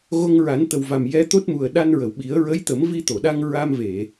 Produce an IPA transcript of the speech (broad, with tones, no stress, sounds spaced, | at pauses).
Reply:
ɣ o˧ ŋ ɹ a˨˩˦ n t̪ ə˨˩ w v a˨˩ m j ɛ˧˥ t̪ o˦˥ t̚ m u˨˩ ə̯ ɗ a˧ n ɹ ə˨˩˨ w ɓ i˨˩˦ ə̯ ɹ ə˧˥ j t̪ ə˨˩˦ m v i˧ t̪ o˨˩˨ ɗ a˧ ŋ ɹ a˧ m v e˨˩˨